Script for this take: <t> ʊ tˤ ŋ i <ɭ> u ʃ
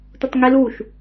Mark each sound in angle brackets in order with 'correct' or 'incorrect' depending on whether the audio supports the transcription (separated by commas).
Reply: correct, incorrect